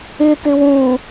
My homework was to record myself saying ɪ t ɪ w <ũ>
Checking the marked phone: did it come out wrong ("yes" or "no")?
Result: no